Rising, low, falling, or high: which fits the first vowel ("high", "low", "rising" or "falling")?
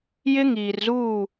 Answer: high